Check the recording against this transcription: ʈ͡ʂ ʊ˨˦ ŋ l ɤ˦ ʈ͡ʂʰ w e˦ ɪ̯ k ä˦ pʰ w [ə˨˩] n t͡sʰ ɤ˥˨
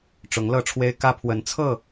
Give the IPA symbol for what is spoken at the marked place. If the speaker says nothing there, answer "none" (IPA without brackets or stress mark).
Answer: ə˨˦